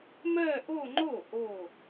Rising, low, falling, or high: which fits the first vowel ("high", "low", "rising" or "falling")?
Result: falling